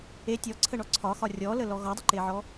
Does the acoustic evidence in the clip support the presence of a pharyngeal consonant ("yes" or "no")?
yes